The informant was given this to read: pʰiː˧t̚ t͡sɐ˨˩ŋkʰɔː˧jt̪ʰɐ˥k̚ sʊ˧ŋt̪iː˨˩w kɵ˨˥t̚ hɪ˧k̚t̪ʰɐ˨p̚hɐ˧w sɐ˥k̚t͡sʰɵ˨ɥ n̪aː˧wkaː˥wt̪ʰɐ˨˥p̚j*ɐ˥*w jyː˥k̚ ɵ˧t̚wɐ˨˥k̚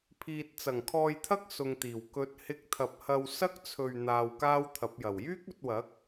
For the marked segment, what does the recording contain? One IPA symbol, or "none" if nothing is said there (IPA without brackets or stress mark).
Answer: ɐ˨˩